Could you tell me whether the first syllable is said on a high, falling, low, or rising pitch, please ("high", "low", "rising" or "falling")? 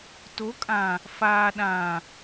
rising